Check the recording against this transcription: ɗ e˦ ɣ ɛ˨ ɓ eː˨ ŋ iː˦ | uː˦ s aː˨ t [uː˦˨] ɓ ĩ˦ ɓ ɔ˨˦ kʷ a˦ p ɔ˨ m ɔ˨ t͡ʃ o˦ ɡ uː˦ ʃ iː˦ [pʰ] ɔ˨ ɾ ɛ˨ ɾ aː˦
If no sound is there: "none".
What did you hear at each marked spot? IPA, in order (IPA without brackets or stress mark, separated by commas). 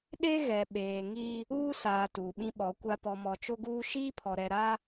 uː˨, pʰ